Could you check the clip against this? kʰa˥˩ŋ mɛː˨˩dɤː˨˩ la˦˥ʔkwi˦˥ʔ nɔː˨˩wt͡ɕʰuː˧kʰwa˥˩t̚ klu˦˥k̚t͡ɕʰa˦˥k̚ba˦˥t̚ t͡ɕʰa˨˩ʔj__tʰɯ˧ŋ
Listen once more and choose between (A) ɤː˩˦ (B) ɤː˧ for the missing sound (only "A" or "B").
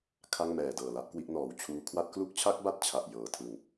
A